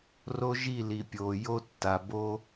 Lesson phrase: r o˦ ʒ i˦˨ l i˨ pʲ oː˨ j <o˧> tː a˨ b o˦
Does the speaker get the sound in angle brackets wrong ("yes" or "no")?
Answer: no